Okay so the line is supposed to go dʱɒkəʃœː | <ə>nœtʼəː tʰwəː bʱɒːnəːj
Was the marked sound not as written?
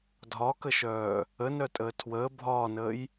no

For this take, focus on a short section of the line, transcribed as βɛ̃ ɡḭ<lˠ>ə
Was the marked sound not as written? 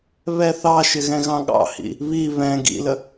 yes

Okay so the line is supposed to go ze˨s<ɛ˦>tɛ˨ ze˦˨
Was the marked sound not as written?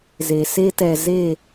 yes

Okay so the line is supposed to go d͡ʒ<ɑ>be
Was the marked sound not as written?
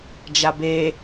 yes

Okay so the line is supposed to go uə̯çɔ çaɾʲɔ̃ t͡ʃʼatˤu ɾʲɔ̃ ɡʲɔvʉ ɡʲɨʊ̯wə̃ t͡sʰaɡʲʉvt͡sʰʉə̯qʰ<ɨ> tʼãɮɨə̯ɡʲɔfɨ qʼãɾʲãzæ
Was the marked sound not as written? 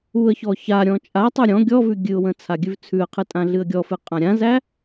no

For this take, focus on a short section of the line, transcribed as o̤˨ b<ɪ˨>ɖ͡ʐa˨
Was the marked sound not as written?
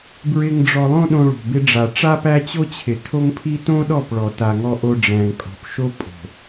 yes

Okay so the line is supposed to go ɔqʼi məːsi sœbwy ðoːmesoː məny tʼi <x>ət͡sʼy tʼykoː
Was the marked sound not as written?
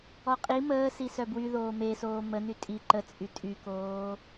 yes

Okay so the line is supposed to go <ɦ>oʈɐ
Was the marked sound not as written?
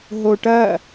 no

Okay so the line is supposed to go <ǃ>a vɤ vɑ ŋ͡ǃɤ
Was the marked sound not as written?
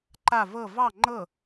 no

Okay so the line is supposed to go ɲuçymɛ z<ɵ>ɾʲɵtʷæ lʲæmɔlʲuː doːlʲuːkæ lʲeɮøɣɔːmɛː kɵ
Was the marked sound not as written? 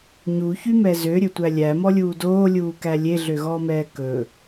yes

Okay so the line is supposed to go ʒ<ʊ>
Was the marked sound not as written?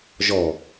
yes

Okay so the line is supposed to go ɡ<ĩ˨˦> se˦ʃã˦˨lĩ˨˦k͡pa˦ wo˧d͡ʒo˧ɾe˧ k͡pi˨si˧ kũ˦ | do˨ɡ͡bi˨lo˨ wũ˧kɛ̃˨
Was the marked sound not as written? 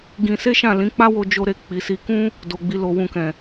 yes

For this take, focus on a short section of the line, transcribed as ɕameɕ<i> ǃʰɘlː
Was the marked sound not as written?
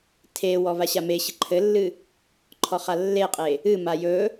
yes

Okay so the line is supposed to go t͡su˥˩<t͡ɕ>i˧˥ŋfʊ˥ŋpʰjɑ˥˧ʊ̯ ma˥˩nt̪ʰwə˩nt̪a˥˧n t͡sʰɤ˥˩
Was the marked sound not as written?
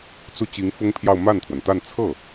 no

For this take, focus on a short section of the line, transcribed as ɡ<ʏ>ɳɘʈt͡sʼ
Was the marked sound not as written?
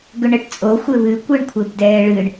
no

